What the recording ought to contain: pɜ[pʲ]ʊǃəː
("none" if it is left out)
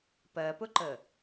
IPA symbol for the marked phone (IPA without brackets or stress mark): p